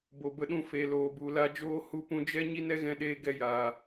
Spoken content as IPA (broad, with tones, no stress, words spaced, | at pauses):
bo˨bə˧ɗũ˧ fe˨loː˨bu˨ la˧d͡ʒoː˧ hu˧pũ˧d͡ʒɛ˦ ɲi˦nɛ˦ɣɛ̃˧ɗeː˧ ɡɛ˧ jaː˨